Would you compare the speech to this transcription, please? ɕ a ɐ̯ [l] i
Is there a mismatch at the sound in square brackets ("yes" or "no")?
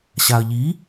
yes